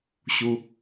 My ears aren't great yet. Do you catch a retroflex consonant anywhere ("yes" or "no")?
no